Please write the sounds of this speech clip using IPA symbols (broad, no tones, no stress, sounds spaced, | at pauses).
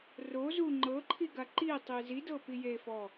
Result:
r o z u ŋ͡ǃ ɤ ǃʰ i ɡ a ǃ i tˤ i z i d ɤ p i j e f ɔ